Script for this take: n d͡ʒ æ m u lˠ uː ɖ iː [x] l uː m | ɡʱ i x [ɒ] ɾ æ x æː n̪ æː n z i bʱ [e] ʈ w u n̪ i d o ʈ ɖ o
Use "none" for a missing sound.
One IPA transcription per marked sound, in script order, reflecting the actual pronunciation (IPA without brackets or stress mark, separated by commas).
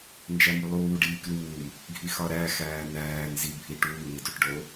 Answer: k, ɒ, i